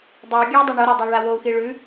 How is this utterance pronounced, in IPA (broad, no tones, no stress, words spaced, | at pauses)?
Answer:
dˤɵu̯ɡʲʉu̯dˤi ɳoɾadˤaɭa wou̯xi ɭʉ